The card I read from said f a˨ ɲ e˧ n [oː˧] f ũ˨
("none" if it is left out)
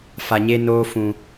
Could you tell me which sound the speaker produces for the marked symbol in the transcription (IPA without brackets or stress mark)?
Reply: oː˧